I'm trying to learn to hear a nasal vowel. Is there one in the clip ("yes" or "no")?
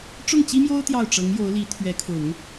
no